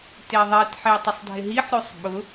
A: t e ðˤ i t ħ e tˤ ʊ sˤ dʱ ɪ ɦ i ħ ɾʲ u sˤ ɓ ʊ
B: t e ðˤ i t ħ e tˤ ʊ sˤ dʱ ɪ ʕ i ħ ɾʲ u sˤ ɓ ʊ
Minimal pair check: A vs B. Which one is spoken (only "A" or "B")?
A